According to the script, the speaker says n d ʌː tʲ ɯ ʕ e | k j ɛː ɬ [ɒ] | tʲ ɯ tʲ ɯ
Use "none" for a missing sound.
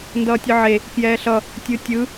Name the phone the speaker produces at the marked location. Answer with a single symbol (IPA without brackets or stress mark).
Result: ʌ